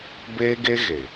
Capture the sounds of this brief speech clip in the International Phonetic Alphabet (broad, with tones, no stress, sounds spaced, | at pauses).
b eː˦ ɡ e˦ ɣ e˨